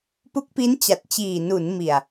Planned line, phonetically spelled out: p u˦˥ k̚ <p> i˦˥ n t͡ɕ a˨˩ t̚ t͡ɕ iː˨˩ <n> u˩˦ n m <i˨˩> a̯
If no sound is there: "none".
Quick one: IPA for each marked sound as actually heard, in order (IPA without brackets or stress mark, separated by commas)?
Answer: p, n, i˨˩